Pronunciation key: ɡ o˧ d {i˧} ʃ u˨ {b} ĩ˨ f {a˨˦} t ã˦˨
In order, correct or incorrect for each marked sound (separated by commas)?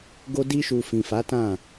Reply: correct, incorrect, correct